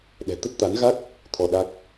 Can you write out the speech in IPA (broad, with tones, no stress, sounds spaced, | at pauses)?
ɗ ɛ̤˨˩ t̪ ə˦˥ t̚ t̪ a˨˦ n ɣ a˦˥ k̚ | t̪ʰ ɔ˧ ɗ a˦˥ k̚